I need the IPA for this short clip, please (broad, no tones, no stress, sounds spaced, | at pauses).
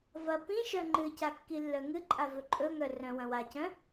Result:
v ɐ p ĩ ʃ œ ŋ͡ǃ ɨ c a kː i lː œ ŋ ɨ ǃʼ a v ɵ ǃʼ ɵ ŋ œ r œ̃ w ɐ̃ w a c œ̃